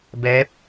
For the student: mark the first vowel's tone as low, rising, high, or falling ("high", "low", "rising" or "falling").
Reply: rising